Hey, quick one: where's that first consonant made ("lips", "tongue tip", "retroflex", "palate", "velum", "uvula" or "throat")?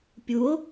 lips